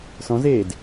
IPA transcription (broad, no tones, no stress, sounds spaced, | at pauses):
s ɔ̃ z eː d